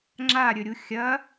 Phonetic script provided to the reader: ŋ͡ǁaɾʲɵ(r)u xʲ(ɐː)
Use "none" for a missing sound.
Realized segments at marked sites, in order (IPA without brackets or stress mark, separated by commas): ɾʲ, ɐː